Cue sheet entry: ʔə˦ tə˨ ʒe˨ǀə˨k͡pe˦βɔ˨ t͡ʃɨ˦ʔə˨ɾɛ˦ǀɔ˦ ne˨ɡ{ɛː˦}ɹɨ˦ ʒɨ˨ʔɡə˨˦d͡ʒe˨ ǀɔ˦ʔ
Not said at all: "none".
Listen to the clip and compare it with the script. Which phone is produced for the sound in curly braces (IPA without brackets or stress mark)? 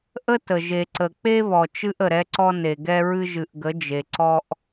ɛ˦